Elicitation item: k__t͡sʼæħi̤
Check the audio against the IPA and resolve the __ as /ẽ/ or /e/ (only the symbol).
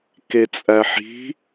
e